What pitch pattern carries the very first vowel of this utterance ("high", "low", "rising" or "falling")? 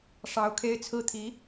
rising